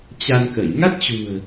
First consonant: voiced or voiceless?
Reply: voiceless